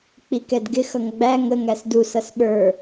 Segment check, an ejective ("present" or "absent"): absent